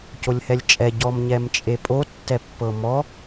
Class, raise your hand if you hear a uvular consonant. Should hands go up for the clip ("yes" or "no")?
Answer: no